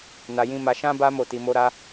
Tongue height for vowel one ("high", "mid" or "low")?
low